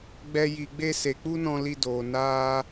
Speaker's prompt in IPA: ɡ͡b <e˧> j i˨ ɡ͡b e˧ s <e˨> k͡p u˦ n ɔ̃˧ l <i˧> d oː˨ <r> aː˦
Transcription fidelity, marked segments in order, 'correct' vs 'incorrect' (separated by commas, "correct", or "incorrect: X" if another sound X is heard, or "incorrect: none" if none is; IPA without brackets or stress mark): incorrect: ɛ˧, correct, correct, incorrect: n